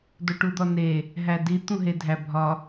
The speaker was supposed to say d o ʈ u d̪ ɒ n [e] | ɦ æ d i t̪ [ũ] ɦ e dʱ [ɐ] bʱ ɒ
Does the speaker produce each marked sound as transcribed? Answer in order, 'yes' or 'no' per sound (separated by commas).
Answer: yes, yes, no